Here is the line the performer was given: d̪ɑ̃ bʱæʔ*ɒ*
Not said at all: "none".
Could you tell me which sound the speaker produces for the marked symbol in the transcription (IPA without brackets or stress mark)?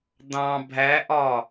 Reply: ɒ